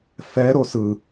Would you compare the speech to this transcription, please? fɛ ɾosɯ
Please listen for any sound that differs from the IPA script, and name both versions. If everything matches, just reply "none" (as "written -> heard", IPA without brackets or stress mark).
none